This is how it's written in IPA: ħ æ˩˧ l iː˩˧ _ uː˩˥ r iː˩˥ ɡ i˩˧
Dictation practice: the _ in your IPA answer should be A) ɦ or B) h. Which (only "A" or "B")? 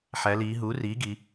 A